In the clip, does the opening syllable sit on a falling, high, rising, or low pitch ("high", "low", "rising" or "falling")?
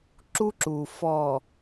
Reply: high